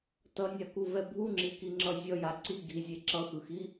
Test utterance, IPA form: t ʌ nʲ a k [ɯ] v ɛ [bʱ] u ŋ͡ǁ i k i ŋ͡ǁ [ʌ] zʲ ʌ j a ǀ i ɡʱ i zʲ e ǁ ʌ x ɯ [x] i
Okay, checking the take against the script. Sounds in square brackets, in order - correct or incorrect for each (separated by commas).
incorrect, correct, correct, correct